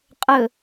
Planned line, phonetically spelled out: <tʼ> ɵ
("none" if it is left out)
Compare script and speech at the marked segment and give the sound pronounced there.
qʼ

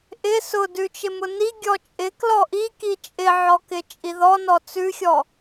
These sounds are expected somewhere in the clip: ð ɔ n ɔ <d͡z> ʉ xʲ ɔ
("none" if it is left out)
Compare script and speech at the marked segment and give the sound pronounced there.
t͡s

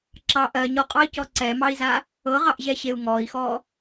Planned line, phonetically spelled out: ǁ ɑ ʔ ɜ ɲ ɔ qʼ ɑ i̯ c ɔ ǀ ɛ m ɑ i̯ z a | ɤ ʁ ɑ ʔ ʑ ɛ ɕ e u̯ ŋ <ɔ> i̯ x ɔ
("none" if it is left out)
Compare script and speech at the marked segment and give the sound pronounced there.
ɔ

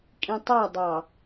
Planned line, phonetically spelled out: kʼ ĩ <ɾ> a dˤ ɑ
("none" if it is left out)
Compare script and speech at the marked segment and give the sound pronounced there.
tˤ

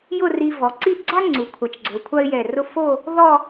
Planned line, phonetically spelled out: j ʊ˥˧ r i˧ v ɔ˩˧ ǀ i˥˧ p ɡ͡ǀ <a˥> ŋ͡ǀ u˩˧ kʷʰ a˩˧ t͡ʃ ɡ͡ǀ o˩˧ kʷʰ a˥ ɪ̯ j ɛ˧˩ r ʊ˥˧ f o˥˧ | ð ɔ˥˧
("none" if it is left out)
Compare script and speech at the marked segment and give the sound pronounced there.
a˥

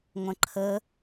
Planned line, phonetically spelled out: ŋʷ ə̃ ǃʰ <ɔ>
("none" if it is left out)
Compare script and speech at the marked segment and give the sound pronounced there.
ə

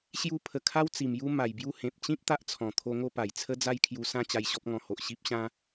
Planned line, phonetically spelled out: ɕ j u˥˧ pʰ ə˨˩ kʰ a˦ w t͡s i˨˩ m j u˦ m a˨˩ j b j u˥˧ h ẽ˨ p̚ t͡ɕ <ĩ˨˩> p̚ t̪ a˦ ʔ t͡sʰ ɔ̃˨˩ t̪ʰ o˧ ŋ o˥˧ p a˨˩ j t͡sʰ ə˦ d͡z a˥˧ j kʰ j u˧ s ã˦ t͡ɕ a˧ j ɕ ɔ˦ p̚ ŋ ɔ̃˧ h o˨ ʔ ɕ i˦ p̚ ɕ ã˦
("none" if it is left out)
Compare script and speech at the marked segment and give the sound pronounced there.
ĩ˦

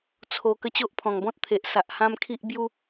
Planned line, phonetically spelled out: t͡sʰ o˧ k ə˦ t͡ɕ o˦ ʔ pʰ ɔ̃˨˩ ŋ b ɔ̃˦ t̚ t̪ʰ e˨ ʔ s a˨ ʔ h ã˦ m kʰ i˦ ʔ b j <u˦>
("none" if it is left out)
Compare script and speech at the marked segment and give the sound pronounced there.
u˦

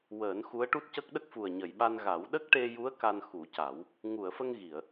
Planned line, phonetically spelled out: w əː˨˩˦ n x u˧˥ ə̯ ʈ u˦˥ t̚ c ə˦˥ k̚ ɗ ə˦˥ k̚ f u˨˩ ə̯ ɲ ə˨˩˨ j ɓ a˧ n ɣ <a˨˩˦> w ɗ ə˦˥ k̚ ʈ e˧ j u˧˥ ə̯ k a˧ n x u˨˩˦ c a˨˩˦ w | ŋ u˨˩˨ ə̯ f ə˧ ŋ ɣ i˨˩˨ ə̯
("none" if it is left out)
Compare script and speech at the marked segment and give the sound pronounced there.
a˨˩˦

